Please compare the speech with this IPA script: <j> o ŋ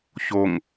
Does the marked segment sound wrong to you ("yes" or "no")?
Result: yes